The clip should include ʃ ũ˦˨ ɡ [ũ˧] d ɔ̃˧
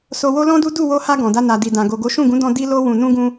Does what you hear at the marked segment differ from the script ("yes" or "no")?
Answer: yes